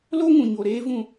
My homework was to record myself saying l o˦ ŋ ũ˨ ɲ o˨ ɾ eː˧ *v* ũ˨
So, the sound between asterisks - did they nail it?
yes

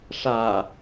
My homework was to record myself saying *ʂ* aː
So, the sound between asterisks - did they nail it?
yes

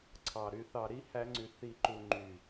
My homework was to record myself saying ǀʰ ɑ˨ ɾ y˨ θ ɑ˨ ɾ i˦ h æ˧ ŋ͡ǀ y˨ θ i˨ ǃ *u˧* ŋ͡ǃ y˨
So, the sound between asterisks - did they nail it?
no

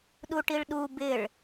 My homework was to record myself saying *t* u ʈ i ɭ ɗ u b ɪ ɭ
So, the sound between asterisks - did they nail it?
no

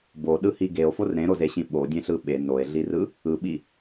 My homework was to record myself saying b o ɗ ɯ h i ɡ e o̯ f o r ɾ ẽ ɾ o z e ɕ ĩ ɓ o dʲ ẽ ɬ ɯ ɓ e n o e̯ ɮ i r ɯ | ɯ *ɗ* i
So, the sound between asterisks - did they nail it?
no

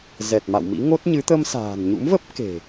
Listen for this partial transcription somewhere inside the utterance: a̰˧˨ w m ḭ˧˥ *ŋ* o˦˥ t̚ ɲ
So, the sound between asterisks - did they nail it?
yes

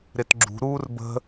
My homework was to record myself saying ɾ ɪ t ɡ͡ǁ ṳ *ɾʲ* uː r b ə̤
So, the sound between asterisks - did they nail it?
no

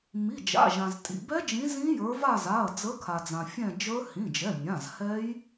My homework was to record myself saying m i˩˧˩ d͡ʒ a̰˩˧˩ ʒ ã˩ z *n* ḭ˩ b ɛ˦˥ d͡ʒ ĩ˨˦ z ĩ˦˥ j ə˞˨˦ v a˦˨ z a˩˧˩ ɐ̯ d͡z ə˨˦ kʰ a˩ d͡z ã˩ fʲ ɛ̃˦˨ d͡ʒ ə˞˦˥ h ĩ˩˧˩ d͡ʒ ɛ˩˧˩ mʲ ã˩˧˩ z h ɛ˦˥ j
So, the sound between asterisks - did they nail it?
no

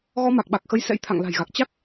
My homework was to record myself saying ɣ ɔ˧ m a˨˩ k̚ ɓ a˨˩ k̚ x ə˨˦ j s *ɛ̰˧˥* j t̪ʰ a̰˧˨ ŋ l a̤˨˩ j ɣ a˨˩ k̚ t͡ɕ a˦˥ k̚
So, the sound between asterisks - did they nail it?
yes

